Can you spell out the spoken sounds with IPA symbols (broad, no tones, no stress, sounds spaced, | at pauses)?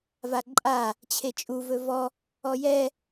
v a ǃʼ a | t͡ɕʰ e t͡ʃʼ u v ɵ v ɔ | ɔ j ɛ